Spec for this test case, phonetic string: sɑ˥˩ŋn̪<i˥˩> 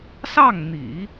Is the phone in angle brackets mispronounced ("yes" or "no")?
yes